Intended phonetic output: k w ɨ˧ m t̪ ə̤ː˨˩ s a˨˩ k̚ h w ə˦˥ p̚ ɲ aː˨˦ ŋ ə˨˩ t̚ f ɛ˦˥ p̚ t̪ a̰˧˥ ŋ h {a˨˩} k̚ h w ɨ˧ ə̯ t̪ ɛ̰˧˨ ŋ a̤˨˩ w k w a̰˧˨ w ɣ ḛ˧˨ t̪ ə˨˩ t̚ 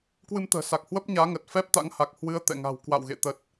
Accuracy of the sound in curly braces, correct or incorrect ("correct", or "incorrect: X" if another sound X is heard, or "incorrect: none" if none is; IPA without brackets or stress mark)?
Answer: correct